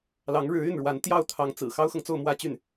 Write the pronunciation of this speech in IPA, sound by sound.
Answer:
l ɑ˧˥ ŋ ɻ ɻ̩˧˥ y˥˩ n ɻ w a˧˥ n t̪ j ɑ˥˩ ʊ̯ t̪ʰ ɑ˧˥ ŋ t͡s ɹ̩˨˩ x ɑ˥ ʊ̯ x ɤ˨ ŋ t͡s o˥˩ ʊ̯ m w ä˥ t͡ɕ y˥˩ n

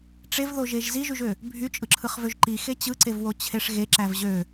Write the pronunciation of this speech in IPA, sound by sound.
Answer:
ʈ͡ʂ e v ð o ʒ e ʒ z i ʒ y ʒ ø | bʱ y t͡ʃʼ ɯ ǁʰ ɯ χ v ø ʒ ǃ i x e t͡ɕ ɯ ǀ e v w o t͡ɕʰ e ʂ ɣ e ǁ æ v ʑ ø

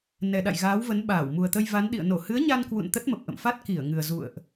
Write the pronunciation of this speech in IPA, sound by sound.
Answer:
n ɛ˨˩ ɗ a̰˧˨ j ɣ aː˨˦ w v ə˨˦ n ɓ aː˧˩ w m u˨˩ ə̯ t̪ ə˧ j v a˨˦ n ɗ ḭ˧˨ ə̯ n o˧˩ h ɨ˨˦ ə̯ ɲ a˧ n k w ṵ˧˨ n t̪ ə˦˥ t̚ m ə˨˩ p̚ ʔ ə̰˧˨ m f a˦˥ t̚ k i˧˩ ə̯ ŋ ɨ˨˩ ə̯ z ṵ˧˨ ə̯ ʔ

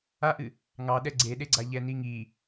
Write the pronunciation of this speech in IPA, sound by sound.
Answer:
a ʔ ɨ | ŋ ɑ ɗ ɛ ɡ͡ǀ e ɗ e ɡ͡ǀ a ʎ ɛ n i ŋ i

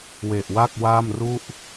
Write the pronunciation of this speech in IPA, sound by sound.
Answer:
w e˨˩ ʔ w a˥˩ k̚ w aː˥˩ m r u˥˩ ʔ

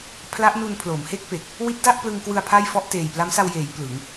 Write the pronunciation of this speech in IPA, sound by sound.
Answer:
pʰ l a˦˥ ʔ n u˧ n pʰ l oː˩˦ m h e˥˩ k̚ p e˨˩ k̚ | w i˦˥ t̚ d a˥˩ ʔ p l ɯ˧ ŋ k w ɯ˧ a̯ pʰ a˥˩ j f ɔ˥˩ ʔ t eː˨˩ j p l a˦˥ m s a˧ w j eː˩˦ j p l ɯ˩˦ ŋ

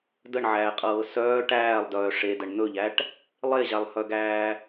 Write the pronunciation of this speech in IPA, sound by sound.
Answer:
d ə ɳ ʕ æː qʼ ɤː s œː ʈ æː lˠ d œː ʂ e d ə ɳ n̪ ɵ ʎ æ ʈ | lˠ e ʑ a lˠ h œ ɡ æː

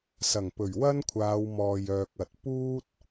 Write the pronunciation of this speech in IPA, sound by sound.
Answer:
s ɐ˨˩ ŋ p ɵ˨˩ ɥ w ɐ˥ n kʷʰ aː˨˧ w m ɔː˨ j œː˨ k̚ ɐ˨ t̚ p uː˥ t̚

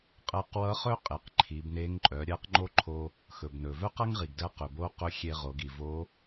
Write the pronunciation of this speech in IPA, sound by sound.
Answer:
qʼ ɜ˧ q w ʌ˧˥ χ ɵ˥ qʼ e˩˧ q ǃʰ i˩˧ b n e˧˥ ŋ ǃʼ œ˩˧ ɾʲ ɜ˧˥ q ŋ͡ǃ o˥ ǃʰ o˧ | x ɵ˩ b n ɵ˩ v œ˥ q ʌ˥ ŋ ʁ i˩ ɡ d ɜ˧ q ɵ˩ b o˧˥ q ɵ˧˥ xʲ e˧ ʁ o˩˧ ɡ i˩ v o˧˥

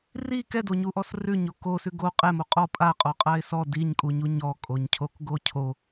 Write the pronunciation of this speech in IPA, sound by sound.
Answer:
r i k ɛ d o ɲ u ʔ ɔ s r ʉ ɲ o k o s ʉ ɡ o qʼ ɛ m o qʼ ɔ pʼ a qʼ ɔ qʼ a ɪ̯ s ɔ d i ɲ kʼ u ɲ u ɲ ɔ kʼ o ɲ cʰ o k ɡ o cʰ o

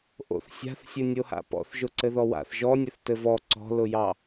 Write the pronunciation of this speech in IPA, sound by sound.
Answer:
ʔ o̰ θ sʲ a̤ θ sʲ ɘ nʲ o h a̰ p ɔ̰ θ ʒ ʊ ǀ ɘ ð ɔ w a̰ θ ʒ ɔ nʲ ʊ θ t ɘ v ɔ ǀ ɔ̤ l ʊ j ɑ

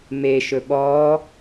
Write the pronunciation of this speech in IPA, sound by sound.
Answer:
m e ʃ ɵ ɓ ɔː

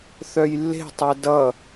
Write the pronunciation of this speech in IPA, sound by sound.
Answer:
θ œ j lː e̤ tˤ ɛ d ʌ

